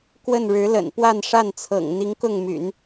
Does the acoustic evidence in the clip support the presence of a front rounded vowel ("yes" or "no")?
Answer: yes